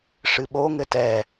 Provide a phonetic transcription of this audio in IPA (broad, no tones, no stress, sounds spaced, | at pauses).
ʂ ɨ ɓ o ŋ ɘ t ɛ